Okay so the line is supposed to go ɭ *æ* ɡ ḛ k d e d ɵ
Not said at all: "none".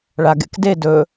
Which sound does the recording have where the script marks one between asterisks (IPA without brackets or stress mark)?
a